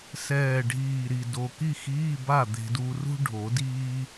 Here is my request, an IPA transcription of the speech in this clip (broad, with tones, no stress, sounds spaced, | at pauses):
s ɛː˨˩ ɖʱ iː˨˩ ɾ i˨˩ d o˨˩ k i˥˨ x iː˧˥˧ b a˥˨ d̪ e̤˧ d uː˧ r ṳ˥ ɖʱ o˨˩˦ d iː˥